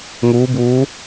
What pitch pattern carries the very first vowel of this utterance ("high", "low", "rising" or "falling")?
rising